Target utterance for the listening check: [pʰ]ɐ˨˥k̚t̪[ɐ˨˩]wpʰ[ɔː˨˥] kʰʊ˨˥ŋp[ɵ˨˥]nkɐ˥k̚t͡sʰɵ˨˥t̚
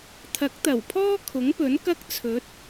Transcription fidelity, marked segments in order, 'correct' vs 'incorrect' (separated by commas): incorrect, correct, incorrect, correct